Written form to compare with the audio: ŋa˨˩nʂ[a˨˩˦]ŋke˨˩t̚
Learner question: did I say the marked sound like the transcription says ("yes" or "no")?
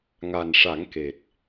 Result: yes